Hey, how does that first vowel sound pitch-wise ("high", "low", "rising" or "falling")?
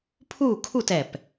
falling